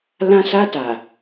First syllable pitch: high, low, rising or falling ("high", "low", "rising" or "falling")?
high